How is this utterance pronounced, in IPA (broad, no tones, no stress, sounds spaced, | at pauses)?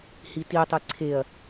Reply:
h i t i tˤ i ǀʰ e ɐ̯